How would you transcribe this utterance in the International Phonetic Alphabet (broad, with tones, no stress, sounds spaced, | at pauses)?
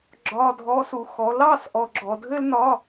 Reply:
ɡ͡ǁ ɒ˧˥˧ dʱ ɔ˧˥ s u˩˥ x ɔ˩˥ l ɑ˧˥˧ s ʔ ɔ˨ ɡ͡ǁ ɔ˨ dʱ ɘ˥ l n ɒ˧˥˧